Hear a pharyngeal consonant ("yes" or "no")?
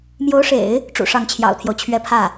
no